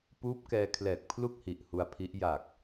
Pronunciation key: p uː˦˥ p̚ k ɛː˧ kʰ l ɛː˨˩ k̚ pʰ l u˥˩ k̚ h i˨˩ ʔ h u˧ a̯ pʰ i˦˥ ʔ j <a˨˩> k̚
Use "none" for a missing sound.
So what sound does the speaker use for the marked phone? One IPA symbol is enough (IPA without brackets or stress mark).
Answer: a˨˩